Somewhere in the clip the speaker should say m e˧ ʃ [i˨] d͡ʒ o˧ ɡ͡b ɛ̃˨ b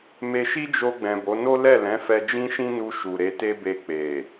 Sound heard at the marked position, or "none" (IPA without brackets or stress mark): i˦